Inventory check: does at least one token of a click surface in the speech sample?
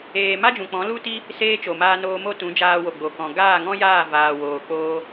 no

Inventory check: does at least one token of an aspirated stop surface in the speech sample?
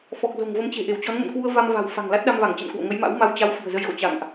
no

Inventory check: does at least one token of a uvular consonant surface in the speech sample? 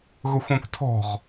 yes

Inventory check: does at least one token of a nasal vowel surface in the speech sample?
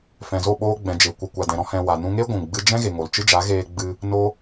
yes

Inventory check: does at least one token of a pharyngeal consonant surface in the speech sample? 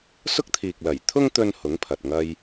no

